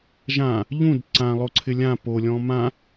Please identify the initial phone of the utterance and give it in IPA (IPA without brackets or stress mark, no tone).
ʒ